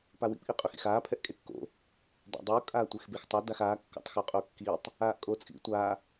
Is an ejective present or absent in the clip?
present